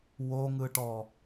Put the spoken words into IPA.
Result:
w o ŋ ɯ ʈ ɔ

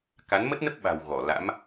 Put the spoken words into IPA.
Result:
k a˨˦ n m ə˦˥ t̚ n ə˦˥ p̚ ɓ a̤˨˩ w ɣ ɔ˧˩ l a̰˧˥ m

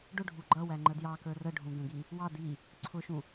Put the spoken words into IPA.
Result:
ɖ ʊ ɖʱ u ɡ͡ǃ ʌ w æ ŋ͡ǃ ə d j ɑ k ə˞ r ə ɖʱ ũ ɡ ə̃ ɡ i | w ɑ d i | ǀʰ ʊ ʃ ũ

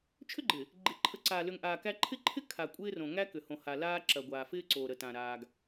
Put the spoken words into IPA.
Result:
t͡ʃʰ ʏ˦ ɡ͡ǃ ɪ˨ | ɡ͡ǃ ɪ˨ ǃʰ ə˨˦ ǀ aː˨ l ʏ˨ ŋ ʔ aː˨ k æ˦ ǃʰ ɪ˦ ǃʰ ɪ˦ kʰ a˨ kʷʼ ɪː˦ r õ˨ ŋ æ˦ k ʏ˨ h õ˨ h a˨ l aː˦ ǁ ɐ˨ ɡʷ aː˨ f ɪː˦ ǀ o˨ ɾ ə˨ t ã˨ ɾ aː˨ ɡ

